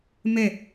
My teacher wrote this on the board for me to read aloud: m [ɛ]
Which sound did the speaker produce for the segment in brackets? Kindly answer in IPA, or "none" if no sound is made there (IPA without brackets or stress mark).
ɛ